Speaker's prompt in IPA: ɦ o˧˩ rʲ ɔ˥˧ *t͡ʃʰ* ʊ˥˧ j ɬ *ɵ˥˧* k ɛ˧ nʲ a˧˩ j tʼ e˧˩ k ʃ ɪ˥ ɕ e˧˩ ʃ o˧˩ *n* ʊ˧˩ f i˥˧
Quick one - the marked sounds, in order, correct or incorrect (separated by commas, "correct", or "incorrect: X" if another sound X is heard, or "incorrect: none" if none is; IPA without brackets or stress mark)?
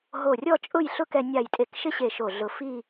incorrect: t͡ʃʼ, incorrect: ʊ˥˧, incorrect: ɮ